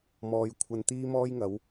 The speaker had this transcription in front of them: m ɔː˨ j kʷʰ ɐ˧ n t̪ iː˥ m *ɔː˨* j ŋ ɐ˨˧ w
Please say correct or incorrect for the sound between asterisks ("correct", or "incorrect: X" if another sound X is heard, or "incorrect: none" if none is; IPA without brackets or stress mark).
incorrect: ɔː˥